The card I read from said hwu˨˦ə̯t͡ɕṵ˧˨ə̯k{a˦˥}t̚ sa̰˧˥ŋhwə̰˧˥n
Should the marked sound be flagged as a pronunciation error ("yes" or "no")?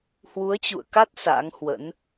no